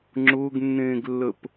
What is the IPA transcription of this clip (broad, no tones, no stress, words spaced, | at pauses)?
ŋ͡ǁʊːɡnːẽːɡlːəp